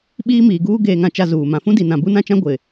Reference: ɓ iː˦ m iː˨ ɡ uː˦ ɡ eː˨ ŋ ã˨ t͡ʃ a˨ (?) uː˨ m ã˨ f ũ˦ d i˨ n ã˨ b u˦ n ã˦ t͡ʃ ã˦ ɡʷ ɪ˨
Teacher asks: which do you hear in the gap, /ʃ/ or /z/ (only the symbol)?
z